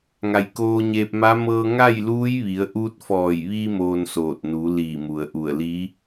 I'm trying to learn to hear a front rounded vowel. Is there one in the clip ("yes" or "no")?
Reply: no